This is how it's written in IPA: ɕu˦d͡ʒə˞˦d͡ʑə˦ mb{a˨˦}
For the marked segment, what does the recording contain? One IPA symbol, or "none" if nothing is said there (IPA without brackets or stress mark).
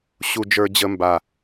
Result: a˨